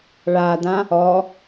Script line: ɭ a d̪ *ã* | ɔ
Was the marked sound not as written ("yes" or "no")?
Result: no